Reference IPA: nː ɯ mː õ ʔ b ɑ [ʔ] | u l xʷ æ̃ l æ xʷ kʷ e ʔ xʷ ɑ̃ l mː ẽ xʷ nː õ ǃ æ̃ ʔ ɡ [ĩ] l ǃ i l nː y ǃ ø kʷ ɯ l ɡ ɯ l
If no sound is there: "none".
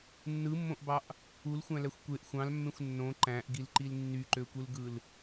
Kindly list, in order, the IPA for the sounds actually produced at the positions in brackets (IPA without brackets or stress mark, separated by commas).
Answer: ʔ, i